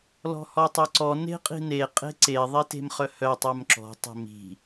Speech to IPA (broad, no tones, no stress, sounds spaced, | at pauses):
l ɔ̤ h ɔ tˤ œ ǀ ɔ n e̤ qʼ i̤ n e qʼ e̤ ǀ e ðˤ i t e̤ m χ œ h œ tˤ œ m ǁ ɔ̤ tˤ e̤ m i̤